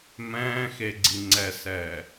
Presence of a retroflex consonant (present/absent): absent